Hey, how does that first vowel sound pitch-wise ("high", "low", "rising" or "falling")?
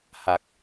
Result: low